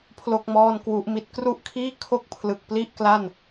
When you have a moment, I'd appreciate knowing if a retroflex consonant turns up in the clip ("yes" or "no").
no